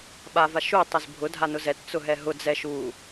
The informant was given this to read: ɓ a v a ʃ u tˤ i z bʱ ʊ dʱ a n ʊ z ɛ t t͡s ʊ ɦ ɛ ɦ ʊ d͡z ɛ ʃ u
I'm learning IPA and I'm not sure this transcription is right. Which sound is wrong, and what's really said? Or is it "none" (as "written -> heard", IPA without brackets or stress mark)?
none